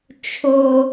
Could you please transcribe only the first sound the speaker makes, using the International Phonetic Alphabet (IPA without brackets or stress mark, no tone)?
t͡ʃʰ